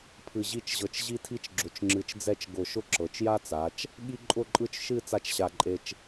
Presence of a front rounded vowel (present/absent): absent